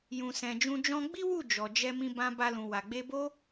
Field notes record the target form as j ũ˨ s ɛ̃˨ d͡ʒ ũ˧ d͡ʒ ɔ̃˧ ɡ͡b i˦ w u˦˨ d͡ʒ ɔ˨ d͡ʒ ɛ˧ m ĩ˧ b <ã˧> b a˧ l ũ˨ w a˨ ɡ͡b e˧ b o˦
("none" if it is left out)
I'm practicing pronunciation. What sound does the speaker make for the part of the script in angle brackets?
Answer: ã˧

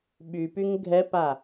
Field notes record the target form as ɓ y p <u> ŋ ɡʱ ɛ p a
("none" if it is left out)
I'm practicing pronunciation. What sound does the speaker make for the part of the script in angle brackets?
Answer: y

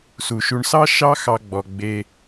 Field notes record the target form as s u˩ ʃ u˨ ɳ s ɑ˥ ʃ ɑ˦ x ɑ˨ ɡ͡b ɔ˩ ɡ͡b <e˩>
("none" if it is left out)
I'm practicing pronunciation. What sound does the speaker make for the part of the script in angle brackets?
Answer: e˨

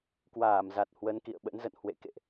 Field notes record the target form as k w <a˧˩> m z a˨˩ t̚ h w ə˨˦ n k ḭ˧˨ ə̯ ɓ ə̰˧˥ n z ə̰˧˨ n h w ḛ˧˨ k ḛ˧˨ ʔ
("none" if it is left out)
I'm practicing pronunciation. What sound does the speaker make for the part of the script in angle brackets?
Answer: aː˧˩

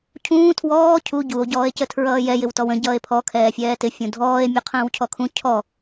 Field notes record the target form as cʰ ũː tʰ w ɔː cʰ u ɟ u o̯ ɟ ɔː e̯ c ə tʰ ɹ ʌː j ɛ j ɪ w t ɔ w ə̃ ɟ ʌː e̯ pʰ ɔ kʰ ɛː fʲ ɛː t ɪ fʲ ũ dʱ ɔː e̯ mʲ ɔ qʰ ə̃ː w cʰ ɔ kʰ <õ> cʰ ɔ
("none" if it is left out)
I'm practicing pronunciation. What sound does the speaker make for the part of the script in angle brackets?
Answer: ũ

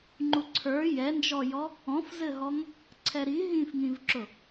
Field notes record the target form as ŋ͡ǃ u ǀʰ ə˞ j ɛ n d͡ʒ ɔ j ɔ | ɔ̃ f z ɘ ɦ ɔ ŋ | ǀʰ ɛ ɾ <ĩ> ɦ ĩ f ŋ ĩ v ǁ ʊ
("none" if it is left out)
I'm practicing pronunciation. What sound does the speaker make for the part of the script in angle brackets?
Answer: i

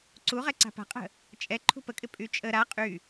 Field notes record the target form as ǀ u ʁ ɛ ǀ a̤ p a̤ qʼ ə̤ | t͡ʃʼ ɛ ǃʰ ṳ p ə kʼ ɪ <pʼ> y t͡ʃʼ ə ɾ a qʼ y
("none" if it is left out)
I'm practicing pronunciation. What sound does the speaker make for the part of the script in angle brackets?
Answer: pʼ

